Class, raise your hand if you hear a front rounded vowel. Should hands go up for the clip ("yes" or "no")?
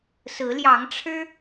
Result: no